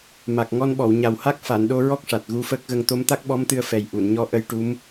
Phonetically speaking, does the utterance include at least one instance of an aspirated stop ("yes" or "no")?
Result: no